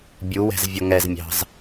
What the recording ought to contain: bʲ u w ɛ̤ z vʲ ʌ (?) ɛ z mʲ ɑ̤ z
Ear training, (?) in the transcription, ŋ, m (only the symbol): ŋ